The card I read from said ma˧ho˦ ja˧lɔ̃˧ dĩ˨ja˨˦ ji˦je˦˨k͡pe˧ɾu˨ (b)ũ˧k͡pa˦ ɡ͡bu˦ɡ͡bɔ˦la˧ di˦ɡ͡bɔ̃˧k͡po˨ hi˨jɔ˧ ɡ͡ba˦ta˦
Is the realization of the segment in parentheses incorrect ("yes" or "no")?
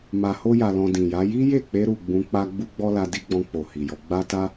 yes